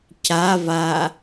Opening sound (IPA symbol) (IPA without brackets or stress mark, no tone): c